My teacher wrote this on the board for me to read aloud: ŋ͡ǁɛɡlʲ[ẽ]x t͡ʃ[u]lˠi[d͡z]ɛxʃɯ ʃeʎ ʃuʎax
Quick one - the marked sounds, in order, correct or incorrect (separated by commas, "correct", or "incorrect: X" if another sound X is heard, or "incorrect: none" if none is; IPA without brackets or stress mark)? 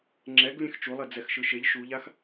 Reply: correct, correct, correct